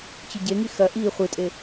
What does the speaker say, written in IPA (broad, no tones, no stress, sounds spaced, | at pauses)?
t͡ɕ ʉ ɟ e ŋ i x ɐ ʔ i χʷ ɨ tʼ e